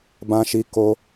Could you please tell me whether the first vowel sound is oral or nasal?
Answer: nasal